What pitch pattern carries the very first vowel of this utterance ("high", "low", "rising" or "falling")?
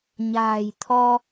low